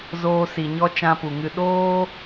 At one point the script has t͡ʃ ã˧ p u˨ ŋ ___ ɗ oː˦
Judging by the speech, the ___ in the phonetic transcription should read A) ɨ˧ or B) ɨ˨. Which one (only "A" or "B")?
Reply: A